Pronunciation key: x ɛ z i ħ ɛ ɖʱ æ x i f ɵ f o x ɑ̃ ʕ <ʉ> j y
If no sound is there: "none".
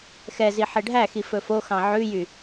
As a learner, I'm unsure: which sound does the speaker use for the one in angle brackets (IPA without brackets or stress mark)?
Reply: ʉ